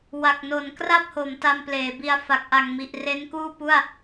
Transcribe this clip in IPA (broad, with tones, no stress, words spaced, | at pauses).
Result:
wa˨˩k̚no˩˦n kra˥˩p̚ho˩˦m ta˧mpleː˩˦bi˧a̯ fa˨˩k̚ʔa˨˩ŋmi˨˩ʔ re˦˥nkuː˥˩pu˥˩a̯